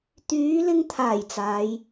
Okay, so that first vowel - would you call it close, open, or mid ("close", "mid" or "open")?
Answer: close